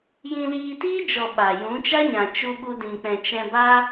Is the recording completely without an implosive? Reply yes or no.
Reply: no